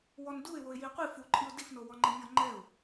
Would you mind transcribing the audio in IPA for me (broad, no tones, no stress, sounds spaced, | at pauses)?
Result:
w ɔ n d u ɪ̯ w o ɪ̯ j i qʷ i f u ǃʼ i ʊ̯ d i f n o w ɔ ŋ͡ǃ ɛ mʲ ɔ ŋ͡ǃ ɛ ʊ̯